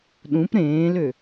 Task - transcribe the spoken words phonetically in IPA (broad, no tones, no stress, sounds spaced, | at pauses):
ɗ ũ p ɾ ẽː l ø